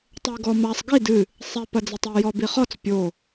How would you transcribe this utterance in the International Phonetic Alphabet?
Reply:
tˤ ɘ e̯ ɡ ɔ m a sˤ ɡ i d ɨ | sˤ ɛ p ɐ d͡z ɛ tˤ e j ɔ b i χ ɔ t͡s pʲ o

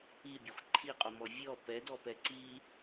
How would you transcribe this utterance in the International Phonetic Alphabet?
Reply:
i bʲ ɐ xʷ ǃʰ i qʼ o m ɔ vʲ ɔ p ɛ d ɔ p ɛ ǀ i

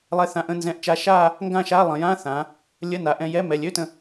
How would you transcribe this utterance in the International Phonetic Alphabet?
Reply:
lˠ ɛ˧ θ ã˧˩ ʔ ə̃˥˧ n z ɛ̃˧˩ ʔ t͡ʃ a˧ ʃ a˥˧ | ŋ ɡ ã˥˧ ʃ a˧˥˧ lˠ ə̃˩˧ j ã˧˥˧ θ ã˩˧ | lʲ ə˧˥˧ n a˩˧ ʔ ɛ̃˧ j ɛ˧˥˧ m ɛ˩˧˩ lʲ ø˧˥˧ t ə̃˧˩

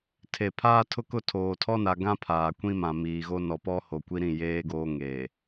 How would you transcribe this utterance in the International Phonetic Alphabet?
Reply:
tʰ e˨ pʰ aː˦ tʰ ʊ˦ k ʊ˦˨ tʰ oː˨ tʰ ɔ˦ n a˨ ɡ ã˦ pʰ aː˨ kʷ ĩ˦ m ã˨ m iː˨ ɣ o˦ n ɔ˨ p ɔ˦ h o˨ kʷ i˦ ɾ ĩ˦˨ j eː˦ ɡ oː˦ ŋ eː˨

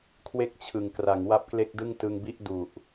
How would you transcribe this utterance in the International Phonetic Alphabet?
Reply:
kʰ w e˥˩ k̚ t͡ɕʰ ɯ˨˩ ŋ k r a˩˦ ŋ w a˥˩ p̚ k l e˥˩ k̚ d ɯ˥˩ ŋ t ɯ˧ ŋ b i˥˩ ʔ d u˨˩ ʔ

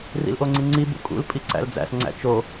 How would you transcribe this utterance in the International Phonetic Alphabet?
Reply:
r ḭ l ʔ o ŋ͡ǀ i ŋ͡ǀ i b ṵ kʼ ṵ l pʼ i ǀ æ̰ l d͡z æ̰ s ŋ͡ǀ æ̰ t͡ʃ o

